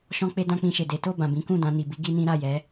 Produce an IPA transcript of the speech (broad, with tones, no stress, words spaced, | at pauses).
ʃɔ̃˦k͡pe˦dã˦k͡pĩ˧ ʃe˨de˨˦ to˦˨bã˨ bĩ˨˦ kũ˦˨dã˧ni˨ bi˨˦ ɡi˦nĩ˦ ɾa˦˨jɛ˨˦